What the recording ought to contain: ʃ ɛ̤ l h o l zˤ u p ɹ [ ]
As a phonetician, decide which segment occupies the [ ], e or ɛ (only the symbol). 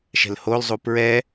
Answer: ɛ